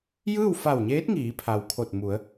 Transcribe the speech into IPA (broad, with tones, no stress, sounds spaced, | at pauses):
j ɯː˥˨ w f a˧˩ w ɲ eː˧˥ t̚ ŋ iː˩˧ pʰ a˩ w kʰ o˧˩ t̚ m u˩˧ ə̯